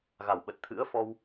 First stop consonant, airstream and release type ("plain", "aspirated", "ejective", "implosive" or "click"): implosive